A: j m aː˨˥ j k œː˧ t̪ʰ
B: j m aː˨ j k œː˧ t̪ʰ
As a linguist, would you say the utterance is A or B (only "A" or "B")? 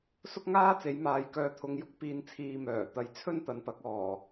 B